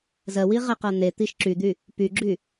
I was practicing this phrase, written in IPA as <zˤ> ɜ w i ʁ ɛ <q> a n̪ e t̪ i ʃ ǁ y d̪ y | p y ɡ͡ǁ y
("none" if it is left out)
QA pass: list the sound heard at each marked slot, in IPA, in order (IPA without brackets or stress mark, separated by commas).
z, q